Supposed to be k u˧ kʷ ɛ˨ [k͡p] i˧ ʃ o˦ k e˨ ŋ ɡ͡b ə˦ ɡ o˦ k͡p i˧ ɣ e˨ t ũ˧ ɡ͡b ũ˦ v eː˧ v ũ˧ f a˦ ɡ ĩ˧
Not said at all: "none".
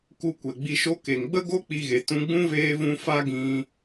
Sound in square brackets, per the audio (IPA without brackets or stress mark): ɡ͡b